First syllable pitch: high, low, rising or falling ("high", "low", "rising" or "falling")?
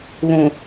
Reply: low